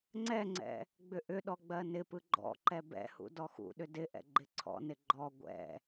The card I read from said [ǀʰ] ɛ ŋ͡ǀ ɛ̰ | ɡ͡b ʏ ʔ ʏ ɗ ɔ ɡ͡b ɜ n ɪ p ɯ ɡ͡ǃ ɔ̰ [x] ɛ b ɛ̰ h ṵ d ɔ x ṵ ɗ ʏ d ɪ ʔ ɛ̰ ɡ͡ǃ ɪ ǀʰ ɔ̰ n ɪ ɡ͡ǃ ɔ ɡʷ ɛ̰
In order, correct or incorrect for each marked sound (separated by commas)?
incorrect, incorrect